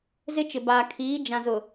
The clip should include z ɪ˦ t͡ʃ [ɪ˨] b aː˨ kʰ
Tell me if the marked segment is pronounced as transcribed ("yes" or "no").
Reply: yes